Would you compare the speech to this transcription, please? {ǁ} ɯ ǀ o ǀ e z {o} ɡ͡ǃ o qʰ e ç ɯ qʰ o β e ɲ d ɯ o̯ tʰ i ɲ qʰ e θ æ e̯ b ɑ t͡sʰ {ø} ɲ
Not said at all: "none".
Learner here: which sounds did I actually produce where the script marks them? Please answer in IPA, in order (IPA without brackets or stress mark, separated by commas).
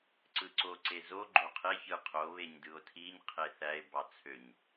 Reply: ǀ, o, ø